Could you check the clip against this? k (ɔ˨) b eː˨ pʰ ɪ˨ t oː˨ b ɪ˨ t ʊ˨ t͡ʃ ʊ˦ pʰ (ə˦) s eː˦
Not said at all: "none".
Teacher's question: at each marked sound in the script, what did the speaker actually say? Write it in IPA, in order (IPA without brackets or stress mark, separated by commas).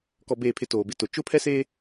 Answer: ɔ˨, ɛ˦